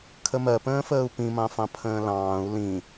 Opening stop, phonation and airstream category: aspirated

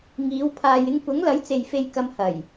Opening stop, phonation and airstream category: aspirated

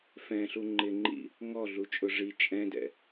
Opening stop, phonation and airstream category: click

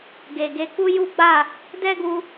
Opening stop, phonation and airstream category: plain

